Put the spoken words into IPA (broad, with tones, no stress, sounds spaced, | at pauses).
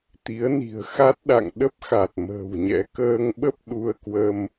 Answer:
t̪ i˨˦ ə̯ n i̤˨˩ ə̯ x a˦˥ t̚ ɗ a̰˧˨ ŋ ɗ ə˦˥ p̚ x a˨˩ t̚ m ə̤ː˨˩ w ɲ ɛ̰˧˥ k əː˧ ŋ ɓ ə˦˥ p̚ ɗ u˧ ə̯ k w ə˧ m